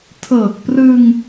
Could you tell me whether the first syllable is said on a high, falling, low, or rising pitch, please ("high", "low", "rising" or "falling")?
low